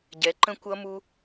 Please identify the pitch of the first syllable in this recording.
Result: rising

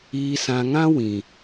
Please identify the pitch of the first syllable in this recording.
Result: low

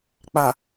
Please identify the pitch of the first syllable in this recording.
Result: low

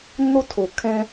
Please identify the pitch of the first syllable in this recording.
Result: high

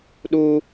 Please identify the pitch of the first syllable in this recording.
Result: high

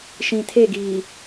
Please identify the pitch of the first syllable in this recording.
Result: low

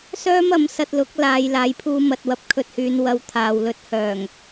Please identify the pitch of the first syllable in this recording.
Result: high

